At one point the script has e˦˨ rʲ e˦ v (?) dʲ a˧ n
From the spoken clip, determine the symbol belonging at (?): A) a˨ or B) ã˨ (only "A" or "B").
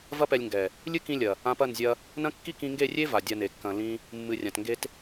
A